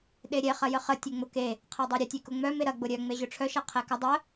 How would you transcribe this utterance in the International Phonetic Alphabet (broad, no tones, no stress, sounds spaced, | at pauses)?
ɗ e ɾʲ ɛ χ ɐ j ə χ ə tʲ ɛ ŋ͡m ʊ k e | qʰ ɛ dˤ œ ɾʲ ə tʲ e k ʊ ŋ͡m œ m e ɾ ɐ ɡ͡b ʊ ɾʲ œ ŋ͡m e ʑ ʊ ʈ͡ʂʰ œ ʃ ɐ qʰ ɛ k ɐ dˤ ə